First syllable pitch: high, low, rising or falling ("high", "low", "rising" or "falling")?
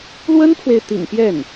high